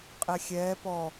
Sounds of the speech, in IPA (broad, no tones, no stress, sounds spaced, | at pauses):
qʼ ɛ xʲ ɛː p ɔ